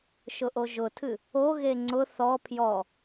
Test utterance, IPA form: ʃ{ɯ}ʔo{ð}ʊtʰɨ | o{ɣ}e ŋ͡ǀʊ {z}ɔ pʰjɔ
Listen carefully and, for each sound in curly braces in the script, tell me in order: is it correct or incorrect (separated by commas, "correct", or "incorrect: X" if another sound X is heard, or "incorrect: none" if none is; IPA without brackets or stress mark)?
incorrect: ʊ, incorrect: ʒ, correct, incorrect: θ